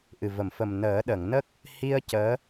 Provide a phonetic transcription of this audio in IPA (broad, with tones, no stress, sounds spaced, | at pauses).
ʔ ɨ˨˩ v ə˨˩˨ m f ə˨˩ m n əː˨˩˦ ɗ ə˨˩˨ ŋ n ə˦˥ k̚ | h i˧ ə̯ c əː˧˥